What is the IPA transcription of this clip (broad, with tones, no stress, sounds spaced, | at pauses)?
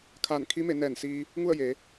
kʰ a˧˩ n kʰ i˧˥ m e˩˧ n ɛː˧˩ n s iː˧ | ŋ u˥˨ ə̯ j eː˩˧